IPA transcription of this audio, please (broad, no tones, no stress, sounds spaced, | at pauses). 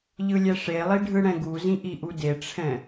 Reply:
ʎ ɯ lʲ ɛ ʂ e lˠ i ɖʱ ɯ ɽ ɛ̃ ɡ u z ĩ ʔ i ʔ u d e ʈ͡ʂʰ ɛ̃